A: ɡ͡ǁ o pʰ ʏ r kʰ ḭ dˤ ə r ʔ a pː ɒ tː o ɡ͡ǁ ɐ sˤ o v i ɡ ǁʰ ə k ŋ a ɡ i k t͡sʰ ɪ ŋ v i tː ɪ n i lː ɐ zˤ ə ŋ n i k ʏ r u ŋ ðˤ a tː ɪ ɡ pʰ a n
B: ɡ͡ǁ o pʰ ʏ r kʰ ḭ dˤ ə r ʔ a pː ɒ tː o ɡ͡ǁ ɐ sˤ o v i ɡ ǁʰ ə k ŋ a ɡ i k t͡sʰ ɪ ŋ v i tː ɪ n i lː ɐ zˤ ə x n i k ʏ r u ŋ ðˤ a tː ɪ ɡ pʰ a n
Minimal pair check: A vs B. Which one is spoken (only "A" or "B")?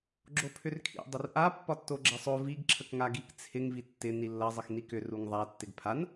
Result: B